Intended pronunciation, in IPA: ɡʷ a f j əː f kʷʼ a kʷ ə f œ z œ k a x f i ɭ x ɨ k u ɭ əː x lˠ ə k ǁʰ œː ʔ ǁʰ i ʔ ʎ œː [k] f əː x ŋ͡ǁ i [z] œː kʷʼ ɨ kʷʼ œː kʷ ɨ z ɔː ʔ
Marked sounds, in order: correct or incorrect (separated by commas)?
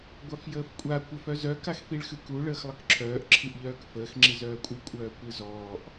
correct, correct